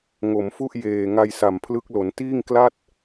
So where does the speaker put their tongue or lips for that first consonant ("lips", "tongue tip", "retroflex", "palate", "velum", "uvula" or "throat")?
velum